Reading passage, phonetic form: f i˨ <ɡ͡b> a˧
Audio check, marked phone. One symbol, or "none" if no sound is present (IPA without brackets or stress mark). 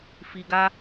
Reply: ɡ